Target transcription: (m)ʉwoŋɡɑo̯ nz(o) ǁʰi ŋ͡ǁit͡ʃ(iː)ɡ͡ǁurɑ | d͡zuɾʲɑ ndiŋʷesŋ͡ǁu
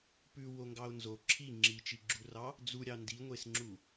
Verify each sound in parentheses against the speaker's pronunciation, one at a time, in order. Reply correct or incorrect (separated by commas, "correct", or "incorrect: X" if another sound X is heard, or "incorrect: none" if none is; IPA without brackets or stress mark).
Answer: incorrect: p, correct, incorrect: i